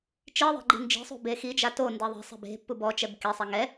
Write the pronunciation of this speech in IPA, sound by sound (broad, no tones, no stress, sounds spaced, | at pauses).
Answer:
t͡ʃ i ðˤ ɛ̤ ɡ͡ǃ i̤ n d͡ʒ i̤ sˤ ṳ b e x i d͡ʒ a t o n d e ðˤ e̤ sˤ ɛ̤ b e̤ pː u b ɔ t͡ʃ ɛ b k e sˤ e ŋ ɛ